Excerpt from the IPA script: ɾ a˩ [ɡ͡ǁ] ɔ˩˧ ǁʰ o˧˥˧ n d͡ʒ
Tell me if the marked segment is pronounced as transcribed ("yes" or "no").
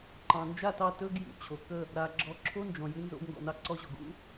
yes